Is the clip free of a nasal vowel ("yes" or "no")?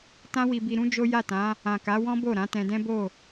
no